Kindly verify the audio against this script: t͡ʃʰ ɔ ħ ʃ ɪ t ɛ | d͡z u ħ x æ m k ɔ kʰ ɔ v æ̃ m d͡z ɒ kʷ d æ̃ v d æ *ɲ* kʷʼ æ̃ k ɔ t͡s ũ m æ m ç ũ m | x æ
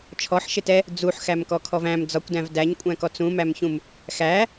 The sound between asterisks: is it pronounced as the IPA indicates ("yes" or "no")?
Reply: yes